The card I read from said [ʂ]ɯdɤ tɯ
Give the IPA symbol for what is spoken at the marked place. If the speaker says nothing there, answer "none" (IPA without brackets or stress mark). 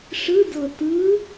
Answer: ʂ